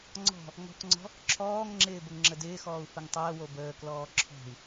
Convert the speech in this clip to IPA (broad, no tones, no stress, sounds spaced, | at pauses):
ŋ͡ǀ ɔ̤ | ŋ ɔ̤ k ŋ͡ǀ ɔ̤ | ǁʰ ɔː ŋ ŋ͡ǁ ɪː b ə ŋ ŋ͡ǁ ə d ɪː x ɔː u̯ f ə ŋ tˤ əː w o b əː k l ɔː ǁʰ ɔ̤ i̯